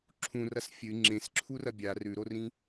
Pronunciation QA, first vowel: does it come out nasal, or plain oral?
nasal